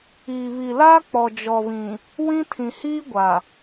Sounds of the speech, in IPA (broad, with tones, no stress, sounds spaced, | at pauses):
iː˨ β i˨ l aː˦ k͡p ɔ˨ d͡ʒ ɔ˨ β ĩ˨ | w ĩ˦ tʰ ĩ˨ h iː˦ ɡʷ a˨